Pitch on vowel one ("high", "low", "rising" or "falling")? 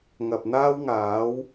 low